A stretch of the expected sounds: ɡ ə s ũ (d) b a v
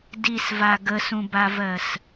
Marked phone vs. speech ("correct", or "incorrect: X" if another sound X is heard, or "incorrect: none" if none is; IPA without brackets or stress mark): incorrect: none